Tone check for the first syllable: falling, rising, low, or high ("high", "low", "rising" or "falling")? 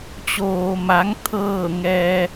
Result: low